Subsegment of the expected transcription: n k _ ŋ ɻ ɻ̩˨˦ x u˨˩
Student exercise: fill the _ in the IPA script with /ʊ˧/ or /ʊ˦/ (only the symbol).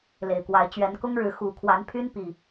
ʊ˦